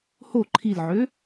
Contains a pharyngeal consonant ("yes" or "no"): yes